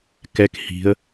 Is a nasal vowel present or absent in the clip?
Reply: absent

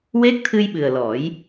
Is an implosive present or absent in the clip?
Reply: present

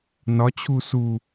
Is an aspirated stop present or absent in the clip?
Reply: present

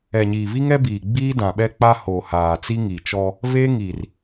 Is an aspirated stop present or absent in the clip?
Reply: absent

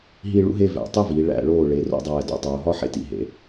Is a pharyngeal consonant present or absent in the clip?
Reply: present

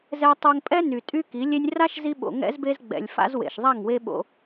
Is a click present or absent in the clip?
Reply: absent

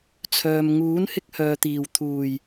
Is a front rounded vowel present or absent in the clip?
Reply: present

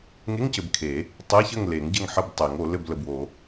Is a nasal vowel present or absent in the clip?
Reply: absent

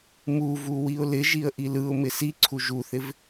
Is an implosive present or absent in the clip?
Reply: absent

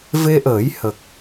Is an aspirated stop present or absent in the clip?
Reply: absent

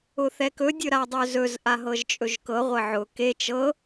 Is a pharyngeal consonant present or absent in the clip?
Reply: present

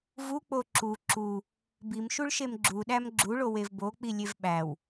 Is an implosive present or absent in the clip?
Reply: present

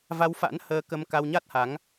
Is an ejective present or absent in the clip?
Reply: absent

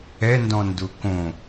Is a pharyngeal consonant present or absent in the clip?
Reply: absent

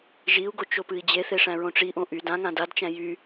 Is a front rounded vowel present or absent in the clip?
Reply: present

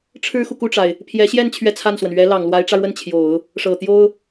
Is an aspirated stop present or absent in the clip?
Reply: present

